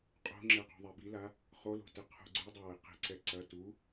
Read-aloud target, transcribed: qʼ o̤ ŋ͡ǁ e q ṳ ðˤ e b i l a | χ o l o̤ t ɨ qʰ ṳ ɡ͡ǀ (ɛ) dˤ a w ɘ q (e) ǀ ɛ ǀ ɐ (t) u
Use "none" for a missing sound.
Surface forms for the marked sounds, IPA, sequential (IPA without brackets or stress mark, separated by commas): ɨ, e̤, t